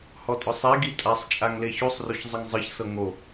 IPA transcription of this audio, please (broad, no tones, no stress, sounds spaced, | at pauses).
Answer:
h ɔ tʼ ɔ sˤ i ɡ i tʼ a sˤ t͡ʃʼ a ŋ l e ç u sˤ r o ç zˤ i ŋ zˤ ɯ ç s ɤ ŋ o